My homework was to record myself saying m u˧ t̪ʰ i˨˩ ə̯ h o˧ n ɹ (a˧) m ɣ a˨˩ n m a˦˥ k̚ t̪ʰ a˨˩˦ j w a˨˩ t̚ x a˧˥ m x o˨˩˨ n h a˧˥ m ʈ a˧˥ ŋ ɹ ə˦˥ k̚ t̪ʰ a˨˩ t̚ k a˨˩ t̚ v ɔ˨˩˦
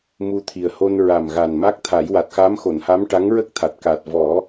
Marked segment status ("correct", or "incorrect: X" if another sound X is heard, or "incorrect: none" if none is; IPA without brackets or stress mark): incorrect: a˨˩